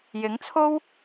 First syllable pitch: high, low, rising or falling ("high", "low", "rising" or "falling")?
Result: rising